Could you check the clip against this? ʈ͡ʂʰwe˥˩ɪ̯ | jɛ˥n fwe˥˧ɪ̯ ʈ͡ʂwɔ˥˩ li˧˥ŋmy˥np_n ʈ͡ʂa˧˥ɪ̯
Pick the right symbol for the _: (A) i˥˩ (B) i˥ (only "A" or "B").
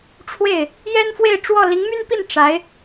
A